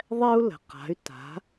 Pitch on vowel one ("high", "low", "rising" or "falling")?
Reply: high